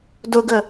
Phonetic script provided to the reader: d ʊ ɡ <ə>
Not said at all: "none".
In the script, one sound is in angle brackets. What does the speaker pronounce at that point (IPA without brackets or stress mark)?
ə